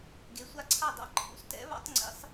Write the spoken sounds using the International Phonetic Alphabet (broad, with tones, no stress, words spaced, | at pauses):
ɡe˨˥sʷa˦ǀʰa˥˩dˤa̰˥˩ ǃʰṵ˨˥stɛ̰˨˥βa̰˨˥tˤ ŋ͡ǀḭ˨˥sˤ